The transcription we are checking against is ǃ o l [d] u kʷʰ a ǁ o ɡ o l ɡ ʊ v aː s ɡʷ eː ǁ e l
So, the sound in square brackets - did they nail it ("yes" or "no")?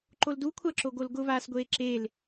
yes